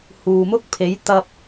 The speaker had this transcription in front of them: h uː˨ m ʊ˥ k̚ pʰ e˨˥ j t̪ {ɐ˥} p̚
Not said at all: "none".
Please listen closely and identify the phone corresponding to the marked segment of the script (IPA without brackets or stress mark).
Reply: ɐ˧